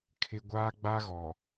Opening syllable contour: high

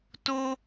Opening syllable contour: high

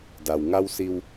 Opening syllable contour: low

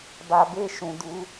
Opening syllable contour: low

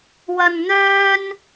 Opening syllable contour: low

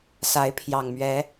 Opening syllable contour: rising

